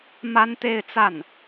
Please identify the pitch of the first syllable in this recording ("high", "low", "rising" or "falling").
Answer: high